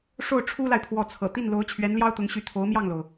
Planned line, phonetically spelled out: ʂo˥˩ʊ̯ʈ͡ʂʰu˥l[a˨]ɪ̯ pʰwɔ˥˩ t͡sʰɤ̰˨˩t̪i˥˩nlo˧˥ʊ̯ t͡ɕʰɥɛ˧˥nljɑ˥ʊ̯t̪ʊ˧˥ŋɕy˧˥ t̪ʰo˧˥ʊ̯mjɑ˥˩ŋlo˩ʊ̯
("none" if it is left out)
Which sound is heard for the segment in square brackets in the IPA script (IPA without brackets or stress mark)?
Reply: a˨